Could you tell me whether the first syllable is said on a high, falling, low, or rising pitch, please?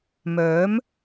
rising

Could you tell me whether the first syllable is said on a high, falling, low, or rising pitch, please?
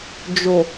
low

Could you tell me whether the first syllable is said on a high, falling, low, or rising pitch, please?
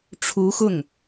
rising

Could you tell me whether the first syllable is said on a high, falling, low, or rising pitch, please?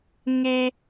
low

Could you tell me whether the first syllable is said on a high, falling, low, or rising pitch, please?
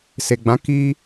low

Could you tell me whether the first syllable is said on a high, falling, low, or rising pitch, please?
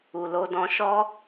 low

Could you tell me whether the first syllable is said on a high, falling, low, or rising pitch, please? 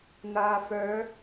low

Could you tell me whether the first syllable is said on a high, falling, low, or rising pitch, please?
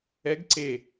rising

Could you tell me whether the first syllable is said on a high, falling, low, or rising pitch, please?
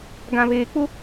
low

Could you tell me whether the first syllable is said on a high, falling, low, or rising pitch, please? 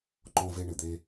high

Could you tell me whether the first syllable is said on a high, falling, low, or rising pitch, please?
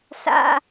high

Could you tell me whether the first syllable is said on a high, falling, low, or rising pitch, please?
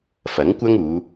rising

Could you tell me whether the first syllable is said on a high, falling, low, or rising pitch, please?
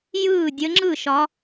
falling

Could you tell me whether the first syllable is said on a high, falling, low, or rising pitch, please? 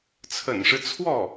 low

